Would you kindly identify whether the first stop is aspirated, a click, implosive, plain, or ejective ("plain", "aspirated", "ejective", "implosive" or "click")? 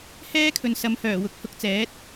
aspirated